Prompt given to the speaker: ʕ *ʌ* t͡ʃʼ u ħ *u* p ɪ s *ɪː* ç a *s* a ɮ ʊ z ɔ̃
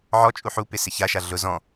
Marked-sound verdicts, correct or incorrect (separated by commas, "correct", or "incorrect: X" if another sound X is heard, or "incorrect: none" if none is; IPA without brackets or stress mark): incorrect: ɔ, correct, incorrect: ɪ, incorrect: ʃ